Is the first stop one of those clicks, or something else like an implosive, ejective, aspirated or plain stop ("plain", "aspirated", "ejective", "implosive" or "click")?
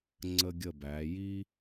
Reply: click